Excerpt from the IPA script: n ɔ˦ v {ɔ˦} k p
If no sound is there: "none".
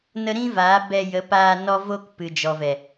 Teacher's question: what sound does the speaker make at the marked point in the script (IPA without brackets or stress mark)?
o˦